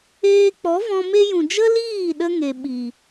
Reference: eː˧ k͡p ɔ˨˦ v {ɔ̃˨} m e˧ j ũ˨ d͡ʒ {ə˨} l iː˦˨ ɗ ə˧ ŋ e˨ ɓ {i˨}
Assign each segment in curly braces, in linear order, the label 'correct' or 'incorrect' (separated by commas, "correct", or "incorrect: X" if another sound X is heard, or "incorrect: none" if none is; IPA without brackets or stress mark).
incorrect: ɔ̃˧, incorrect: ə˦, correct